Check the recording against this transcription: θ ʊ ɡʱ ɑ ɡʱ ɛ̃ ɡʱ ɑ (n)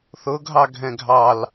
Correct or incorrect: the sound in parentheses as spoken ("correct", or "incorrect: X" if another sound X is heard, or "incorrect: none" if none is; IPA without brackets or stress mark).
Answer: incorrect: l